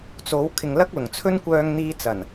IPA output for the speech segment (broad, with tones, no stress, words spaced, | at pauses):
t͡so˨˥w kʰɪ˨ŋlɐ˥k̚lʊ˨˩ŋ t͡sʰɵ˥nkʷœː˧ŋ n̪iː˥t͡sɐ˨˩n